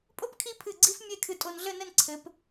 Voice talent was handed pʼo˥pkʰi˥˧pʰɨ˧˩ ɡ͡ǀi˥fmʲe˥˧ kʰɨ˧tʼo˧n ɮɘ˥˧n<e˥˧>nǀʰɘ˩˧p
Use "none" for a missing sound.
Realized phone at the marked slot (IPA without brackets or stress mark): ɘ˥˧